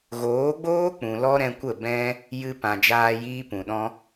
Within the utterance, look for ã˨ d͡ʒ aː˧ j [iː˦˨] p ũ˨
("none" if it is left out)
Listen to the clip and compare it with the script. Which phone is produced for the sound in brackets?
iː˦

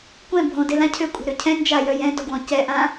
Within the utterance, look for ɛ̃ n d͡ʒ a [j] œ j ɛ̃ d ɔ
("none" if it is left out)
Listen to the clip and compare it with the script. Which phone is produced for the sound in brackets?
j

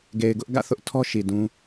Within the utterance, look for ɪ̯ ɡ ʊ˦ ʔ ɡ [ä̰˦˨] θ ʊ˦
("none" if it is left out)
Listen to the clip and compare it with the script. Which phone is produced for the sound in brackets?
ä̰˦˨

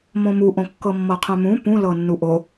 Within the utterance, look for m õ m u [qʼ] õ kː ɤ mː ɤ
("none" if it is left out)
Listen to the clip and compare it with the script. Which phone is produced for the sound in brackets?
ʔ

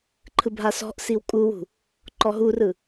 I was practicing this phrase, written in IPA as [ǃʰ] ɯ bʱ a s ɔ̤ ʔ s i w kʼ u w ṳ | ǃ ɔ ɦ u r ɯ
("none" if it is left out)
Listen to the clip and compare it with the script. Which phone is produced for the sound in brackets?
ǃʰ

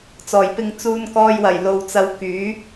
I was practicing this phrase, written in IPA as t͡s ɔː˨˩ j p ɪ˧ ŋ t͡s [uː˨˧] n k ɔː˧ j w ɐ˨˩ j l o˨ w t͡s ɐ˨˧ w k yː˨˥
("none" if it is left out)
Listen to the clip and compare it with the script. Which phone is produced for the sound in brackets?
uː˧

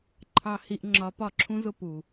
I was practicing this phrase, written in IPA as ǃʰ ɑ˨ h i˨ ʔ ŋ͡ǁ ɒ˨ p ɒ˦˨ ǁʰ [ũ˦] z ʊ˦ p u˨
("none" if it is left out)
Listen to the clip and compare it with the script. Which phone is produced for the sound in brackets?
ũ˦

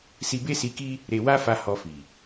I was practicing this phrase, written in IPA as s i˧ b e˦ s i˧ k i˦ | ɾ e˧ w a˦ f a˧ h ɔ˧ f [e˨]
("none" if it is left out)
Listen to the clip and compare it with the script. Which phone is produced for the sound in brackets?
i˨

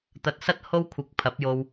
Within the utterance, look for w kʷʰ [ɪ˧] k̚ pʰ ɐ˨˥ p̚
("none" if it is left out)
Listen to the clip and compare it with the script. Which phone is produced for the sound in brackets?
ɪ˨˥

